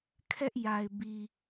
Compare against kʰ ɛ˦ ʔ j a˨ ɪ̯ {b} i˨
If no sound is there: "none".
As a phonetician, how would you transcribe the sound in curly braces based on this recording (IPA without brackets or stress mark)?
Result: b